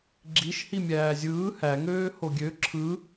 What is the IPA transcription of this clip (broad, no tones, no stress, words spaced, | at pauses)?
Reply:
ɡ͡ǁiʃhi mʲæːzʲɯː hæŋøː hoɡʲø ǁʰɯ